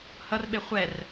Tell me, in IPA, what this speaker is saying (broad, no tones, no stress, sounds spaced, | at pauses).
h ʌ r ɓ e χʷ ɛ r